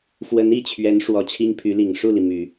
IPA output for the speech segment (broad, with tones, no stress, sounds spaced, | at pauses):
f w ə˧˥ n i˥˩ t͡ɕʰ ɥ ɛ˧˥ n ʂ w ɔ˧˥ t͡ɕʰ i˥ ŋ pʰ y˧˥ l i˨˩ ŋ ʂ u˥˩ l i˩ m y˨˩˦